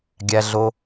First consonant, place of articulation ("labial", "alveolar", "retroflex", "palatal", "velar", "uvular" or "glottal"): velar